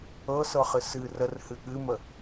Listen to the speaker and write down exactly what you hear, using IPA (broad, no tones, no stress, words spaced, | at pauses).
ɤsɤχɨ sɨ rərhɨ ɠɨmə